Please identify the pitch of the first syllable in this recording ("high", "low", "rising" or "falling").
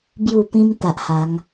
falling